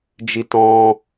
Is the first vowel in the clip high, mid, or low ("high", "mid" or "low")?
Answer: high